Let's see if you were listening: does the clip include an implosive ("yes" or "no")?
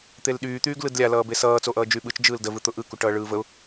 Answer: yes